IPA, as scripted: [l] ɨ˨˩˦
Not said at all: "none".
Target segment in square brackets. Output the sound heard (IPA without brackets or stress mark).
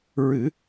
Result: ɹ